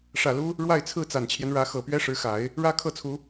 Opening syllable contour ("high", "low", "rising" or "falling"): low